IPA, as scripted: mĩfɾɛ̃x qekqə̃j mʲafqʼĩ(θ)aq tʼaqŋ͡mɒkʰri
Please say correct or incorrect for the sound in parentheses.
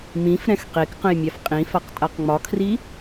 incorrect